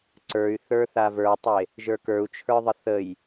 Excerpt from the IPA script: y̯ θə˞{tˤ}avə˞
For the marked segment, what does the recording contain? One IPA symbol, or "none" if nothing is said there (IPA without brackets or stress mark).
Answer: θ